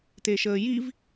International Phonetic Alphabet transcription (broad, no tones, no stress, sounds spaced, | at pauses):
t e ʃ əː j i v